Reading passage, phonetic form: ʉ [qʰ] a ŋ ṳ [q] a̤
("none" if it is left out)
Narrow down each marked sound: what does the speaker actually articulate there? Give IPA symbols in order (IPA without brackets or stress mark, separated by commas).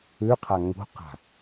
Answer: qʰ, q